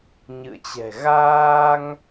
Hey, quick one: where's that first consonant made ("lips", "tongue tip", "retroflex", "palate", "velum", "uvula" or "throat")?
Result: palate